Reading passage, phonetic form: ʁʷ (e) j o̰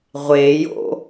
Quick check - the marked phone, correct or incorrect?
correct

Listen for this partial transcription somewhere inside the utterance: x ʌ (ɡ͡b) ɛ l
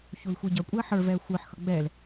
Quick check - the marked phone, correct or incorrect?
correct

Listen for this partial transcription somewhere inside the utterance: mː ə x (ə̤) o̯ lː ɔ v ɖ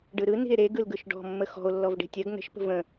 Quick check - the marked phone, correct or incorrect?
incorrect: ɔ̤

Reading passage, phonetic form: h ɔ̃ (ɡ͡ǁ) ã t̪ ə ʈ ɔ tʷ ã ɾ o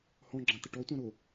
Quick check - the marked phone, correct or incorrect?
correct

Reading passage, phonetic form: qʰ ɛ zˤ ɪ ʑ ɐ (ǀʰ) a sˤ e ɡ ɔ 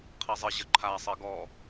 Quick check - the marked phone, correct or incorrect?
incorrect: ǃʰ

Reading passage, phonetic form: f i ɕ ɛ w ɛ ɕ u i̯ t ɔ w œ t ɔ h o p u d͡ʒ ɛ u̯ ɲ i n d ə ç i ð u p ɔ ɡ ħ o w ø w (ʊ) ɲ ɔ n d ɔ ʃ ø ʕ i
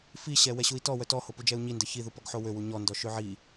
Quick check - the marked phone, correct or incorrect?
incorrect: u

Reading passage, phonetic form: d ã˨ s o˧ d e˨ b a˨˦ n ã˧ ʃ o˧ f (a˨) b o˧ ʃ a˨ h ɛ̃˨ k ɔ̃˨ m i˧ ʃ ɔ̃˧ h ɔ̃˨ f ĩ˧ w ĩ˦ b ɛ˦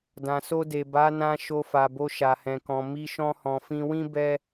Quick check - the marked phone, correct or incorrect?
correct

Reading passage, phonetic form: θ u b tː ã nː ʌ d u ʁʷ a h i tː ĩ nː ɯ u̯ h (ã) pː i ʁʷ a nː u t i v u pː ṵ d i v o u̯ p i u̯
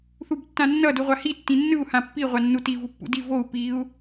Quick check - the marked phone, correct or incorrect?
correct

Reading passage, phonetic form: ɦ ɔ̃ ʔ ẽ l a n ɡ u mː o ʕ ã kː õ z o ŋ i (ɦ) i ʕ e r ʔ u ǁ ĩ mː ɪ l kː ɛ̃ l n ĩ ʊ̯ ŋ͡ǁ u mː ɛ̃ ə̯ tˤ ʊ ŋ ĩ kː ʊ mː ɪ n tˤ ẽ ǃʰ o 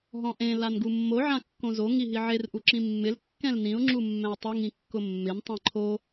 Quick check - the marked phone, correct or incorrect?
correct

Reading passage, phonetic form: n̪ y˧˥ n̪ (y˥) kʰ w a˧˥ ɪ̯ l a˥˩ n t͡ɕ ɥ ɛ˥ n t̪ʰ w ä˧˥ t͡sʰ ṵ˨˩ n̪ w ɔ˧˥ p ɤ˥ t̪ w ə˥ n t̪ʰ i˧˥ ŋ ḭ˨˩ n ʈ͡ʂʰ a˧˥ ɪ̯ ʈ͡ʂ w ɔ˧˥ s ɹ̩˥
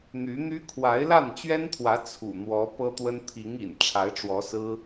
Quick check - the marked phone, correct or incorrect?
correct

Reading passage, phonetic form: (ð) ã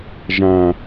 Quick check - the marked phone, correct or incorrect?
incorrect: ʒ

